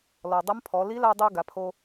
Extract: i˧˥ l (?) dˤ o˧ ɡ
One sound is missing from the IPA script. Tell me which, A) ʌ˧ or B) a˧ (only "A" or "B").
B